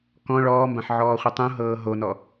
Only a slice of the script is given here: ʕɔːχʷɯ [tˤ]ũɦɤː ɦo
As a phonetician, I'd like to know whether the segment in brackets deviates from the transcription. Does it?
no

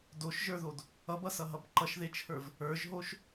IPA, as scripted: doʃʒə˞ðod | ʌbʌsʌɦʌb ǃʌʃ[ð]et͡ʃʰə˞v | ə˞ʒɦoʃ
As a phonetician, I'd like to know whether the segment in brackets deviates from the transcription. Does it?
no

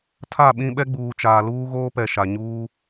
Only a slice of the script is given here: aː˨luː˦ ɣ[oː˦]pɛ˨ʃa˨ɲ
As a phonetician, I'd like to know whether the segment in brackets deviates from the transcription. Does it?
no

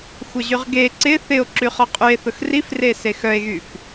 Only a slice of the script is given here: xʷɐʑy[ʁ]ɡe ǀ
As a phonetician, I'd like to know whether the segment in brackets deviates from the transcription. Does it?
no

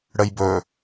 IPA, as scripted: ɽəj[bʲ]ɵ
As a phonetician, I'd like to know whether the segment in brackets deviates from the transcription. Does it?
yes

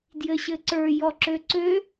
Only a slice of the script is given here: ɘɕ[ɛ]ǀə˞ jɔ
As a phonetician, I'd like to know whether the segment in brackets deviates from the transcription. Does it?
yes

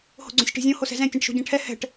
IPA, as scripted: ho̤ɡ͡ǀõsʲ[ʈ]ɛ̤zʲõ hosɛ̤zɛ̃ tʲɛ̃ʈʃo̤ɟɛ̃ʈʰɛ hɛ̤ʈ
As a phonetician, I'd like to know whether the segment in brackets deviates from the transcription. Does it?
no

